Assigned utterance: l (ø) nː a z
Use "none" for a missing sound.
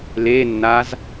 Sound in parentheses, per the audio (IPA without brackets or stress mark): e